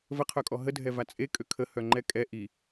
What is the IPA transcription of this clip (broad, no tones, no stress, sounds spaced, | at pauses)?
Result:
v ə qʰ œ kʼ ɔ ɦ ə dʱ ɛ v a t͡sʼ e kʼ ø kʰ ə h œ ŋ͡ǃ ɛ kʼ ɛ ʔ i